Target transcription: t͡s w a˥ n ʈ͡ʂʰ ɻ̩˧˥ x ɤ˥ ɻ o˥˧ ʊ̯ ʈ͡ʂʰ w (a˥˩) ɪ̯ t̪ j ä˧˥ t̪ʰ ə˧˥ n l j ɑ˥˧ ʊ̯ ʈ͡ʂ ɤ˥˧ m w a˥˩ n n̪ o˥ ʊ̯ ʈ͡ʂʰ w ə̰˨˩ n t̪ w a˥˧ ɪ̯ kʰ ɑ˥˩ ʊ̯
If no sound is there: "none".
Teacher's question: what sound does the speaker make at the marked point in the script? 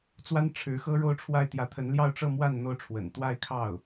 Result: a˥˩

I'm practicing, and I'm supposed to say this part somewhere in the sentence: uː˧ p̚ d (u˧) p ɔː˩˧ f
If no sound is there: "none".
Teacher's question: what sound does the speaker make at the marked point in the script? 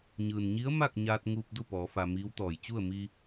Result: u˥˨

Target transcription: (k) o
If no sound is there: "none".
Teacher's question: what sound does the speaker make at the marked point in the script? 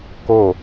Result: k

